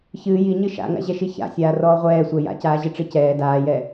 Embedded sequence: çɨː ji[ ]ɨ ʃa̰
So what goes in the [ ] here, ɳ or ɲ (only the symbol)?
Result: ɲ